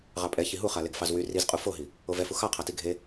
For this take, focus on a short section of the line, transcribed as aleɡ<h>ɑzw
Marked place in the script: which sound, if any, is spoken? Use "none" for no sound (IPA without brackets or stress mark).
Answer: f